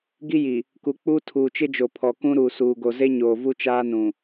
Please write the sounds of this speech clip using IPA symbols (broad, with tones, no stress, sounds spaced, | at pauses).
ɡ i˦ j i˨ | k u˨ k͡p uː˦ tʰ uː˨ t͡ʃ ɪ˦ d͡ʒ o˨ pʰ ɔ˨ k ũ˦ ɾ u˨ s uː˨ ɡ o˨ z e˦ ɲ oː˨ v u˦ t͡ʃ aː˦ n ũ˨